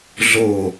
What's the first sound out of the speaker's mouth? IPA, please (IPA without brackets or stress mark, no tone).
ɮ